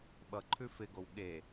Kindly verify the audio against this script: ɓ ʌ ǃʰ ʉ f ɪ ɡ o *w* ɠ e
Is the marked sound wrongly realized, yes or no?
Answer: no